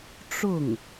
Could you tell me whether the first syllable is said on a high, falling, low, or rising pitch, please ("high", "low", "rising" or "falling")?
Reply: falling